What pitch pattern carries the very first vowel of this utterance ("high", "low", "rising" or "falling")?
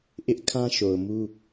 high